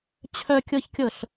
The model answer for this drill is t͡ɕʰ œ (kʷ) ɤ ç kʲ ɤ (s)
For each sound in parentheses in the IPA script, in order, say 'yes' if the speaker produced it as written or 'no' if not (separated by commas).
no, no